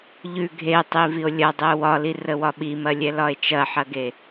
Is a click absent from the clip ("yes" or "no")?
yes